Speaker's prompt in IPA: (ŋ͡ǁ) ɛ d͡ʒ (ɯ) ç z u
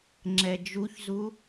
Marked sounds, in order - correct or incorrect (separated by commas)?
correct, incorrect